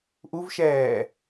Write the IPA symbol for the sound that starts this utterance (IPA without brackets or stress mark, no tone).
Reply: ʔ